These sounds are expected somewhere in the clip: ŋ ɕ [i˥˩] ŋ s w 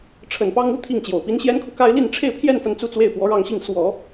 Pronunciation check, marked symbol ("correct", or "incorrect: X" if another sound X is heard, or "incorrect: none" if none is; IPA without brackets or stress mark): correct